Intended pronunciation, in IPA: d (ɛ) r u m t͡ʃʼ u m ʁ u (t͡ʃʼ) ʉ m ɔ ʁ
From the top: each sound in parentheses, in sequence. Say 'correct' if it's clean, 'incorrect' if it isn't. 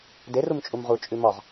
incorrect: e, correct

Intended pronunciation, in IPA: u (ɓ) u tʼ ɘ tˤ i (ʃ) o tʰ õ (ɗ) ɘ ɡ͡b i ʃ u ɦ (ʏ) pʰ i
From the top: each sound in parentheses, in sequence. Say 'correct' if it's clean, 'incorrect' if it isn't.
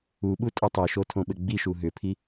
correct, correct, incorrect: ɓ, correct

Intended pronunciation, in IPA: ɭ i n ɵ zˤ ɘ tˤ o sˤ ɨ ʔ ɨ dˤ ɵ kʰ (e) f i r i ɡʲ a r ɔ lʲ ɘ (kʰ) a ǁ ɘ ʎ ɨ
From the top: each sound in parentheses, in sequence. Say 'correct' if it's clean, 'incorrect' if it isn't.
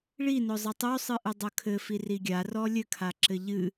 incorrect: ɘ, correct

